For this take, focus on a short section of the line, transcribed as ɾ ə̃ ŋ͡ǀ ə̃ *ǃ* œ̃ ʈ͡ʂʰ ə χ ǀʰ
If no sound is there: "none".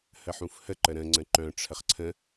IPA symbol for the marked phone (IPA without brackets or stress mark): ǃ